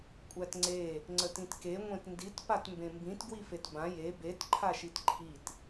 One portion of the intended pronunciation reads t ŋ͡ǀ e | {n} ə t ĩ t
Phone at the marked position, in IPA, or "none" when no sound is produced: ŋ͡ǀ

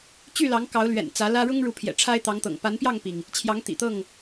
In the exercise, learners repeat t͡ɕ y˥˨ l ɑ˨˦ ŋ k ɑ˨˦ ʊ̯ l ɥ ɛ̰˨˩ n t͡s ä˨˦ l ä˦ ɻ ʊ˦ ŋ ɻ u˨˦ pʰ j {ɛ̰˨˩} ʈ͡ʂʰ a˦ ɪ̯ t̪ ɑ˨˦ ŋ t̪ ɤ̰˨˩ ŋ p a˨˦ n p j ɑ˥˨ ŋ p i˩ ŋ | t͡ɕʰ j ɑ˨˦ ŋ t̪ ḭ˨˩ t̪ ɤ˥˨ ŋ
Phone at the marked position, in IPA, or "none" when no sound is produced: ɛ̰˨˩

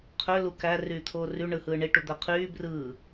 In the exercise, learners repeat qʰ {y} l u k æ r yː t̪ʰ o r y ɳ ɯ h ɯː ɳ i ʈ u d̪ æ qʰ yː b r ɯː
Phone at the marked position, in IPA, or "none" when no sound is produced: ø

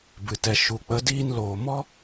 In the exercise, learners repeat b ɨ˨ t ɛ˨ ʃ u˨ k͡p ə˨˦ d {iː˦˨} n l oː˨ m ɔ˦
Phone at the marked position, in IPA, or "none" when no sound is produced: iː˧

